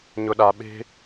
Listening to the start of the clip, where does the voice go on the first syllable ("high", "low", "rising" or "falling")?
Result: low